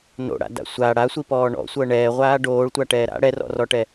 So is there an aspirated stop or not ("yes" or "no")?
no